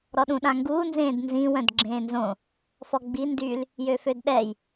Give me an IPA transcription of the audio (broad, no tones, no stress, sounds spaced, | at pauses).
ɾ ɔ ɗ ũ ɗ ã ŋ ɡ uː n z ẽː d n z ĩ w œ̃ d ɡ͡ǁ ẽː n z õ | f ɔ ɡ͡b i n d y l | j ø f ø d ɗ ɛ j